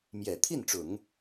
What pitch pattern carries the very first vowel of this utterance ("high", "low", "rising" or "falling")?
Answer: low